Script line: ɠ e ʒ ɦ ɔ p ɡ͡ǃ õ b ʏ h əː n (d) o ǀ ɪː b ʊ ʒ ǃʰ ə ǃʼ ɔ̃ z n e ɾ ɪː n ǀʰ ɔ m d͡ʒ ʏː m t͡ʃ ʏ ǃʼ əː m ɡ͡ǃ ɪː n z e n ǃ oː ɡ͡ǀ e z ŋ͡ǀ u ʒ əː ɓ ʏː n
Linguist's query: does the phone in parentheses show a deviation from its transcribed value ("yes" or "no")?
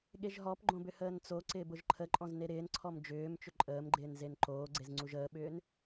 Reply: yes